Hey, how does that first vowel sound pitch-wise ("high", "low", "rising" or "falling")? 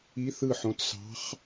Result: rising